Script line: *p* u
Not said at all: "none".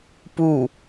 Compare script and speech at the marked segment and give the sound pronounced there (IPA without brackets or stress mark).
p